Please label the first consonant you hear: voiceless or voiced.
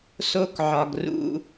voiceless